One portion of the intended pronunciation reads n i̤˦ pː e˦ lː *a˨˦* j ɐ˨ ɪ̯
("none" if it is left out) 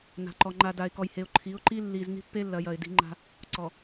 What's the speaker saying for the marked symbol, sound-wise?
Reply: ɐ˨˦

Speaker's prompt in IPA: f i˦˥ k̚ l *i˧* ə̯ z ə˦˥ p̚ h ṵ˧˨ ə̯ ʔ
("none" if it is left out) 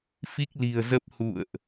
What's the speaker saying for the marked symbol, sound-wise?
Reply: i̤˨˩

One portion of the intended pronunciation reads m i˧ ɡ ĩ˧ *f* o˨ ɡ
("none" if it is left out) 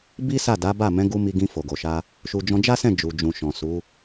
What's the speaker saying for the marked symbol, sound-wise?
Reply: f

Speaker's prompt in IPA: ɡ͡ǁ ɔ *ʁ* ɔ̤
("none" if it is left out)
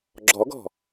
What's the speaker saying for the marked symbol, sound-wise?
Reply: ɡ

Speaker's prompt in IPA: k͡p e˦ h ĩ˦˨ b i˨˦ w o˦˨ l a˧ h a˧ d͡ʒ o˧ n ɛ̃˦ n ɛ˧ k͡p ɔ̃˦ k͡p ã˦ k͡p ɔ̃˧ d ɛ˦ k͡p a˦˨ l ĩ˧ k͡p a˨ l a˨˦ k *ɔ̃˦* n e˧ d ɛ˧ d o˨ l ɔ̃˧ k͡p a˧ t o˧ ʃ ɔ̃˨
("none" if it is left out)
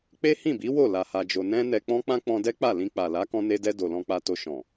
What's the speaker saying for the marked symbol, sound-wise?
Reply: ɔ̃˧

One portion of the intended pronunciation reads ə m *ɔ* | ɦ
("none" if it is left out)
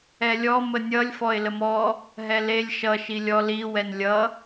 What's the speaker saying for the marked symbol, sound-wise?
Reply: ɔ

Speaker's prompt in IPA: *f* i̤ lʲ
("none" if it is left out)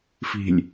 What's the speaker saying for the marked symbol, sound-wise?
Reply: f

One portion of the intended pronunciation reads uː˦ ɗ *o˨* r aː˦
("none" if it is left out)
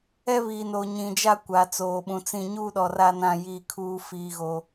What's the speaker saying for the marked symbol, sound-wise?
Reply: ɔ˨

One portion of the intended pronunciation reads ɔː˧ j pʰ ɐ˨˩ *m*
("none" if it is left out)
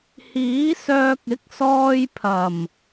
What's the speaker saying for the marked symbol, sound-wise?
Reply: m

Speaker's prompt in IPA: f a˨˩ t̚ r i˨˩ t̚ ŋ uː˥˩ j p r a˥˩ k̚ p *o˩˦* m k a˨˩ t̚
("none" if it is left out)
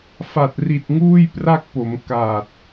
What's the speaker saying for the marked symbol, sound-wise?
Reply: o˩˦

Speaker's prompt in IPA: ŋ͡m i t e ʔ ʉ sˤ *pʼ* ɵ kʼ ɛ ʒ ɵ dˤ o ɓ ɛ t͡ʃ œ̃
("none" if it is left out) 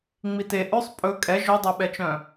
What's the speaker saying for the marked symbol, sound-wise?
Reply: pʼ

